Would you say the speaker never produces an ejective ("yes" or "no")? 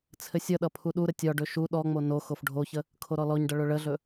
yes